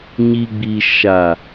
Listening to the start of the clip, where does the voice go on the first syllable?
low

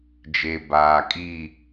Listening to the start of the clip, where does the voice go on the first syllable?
low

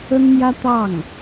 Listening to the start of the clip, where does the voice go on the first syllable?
high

